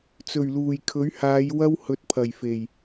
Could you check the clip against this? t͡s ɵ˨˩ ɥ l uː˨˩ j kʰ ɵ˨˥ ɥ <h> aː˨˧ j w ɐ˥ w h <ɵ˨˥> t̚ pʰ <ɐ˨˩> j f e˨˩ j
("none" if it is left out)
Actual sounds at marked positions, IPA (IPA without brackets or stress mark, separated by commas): h, ɵ˨˥, ɐ˨˩